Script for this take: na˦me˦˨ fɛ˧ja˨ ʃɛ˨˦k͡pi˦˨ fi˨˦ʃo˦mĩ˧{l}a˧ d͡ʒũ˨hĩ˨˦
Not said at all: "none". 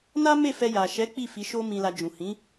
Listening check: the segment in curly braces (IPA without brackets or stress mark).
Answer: l